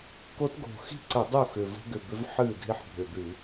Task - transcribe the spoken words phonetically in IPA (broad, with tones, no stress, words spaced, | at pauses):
ko˦˥tɡo̤˨˩ xi̤˥˩ǀə˧˩˧ dˤu˥˩xʏ˨˩ və̤˦˥ɡʏ˨˩bʏ˦˥v ħɨː˥˩dʱi˥˩ħbʱʏ˨˩ d̪ɨ˧˩˧